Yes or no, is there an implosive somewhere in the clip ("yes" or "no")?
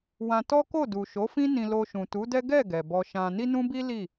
no